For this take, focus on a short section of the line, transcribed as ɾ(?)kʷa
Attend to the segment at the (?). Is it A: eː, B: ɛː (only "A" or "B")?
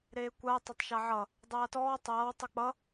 A